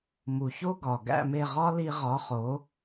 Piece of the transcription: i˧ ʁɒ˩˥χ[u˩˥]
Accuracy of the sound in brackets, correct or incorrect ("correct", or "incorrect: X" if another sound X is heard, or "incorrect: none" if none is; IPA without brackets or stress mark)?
incorrect: o˩˥